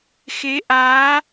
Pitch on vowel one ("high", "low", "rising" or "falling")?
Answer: rising